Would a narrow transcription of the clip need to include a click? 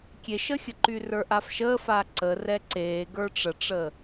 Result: yes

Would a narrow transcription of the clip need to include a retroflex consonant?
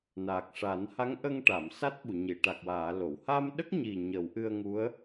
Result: yes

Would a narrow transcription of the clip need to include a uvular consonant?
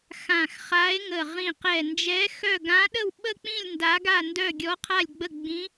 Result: yes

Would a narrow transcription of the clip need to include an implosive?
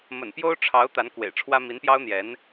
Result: no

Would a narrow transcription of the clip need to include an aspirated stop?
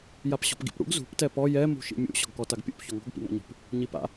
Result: no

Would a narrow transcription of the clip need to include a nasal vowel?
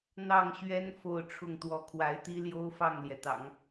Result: no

